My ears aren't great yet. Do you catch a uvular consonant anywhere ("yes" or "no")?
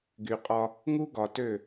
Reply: yes